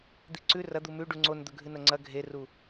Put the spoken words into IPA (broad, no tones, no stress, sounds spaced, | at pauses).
d̪ i ǀ ʉ r ɐ d̪ u m ʉ ɖ u ŋ͡ǀ o n d̪ ɵ ɡʱ ɨ n ɐ ŋ͡ǀ ɐ ɡʱ e r u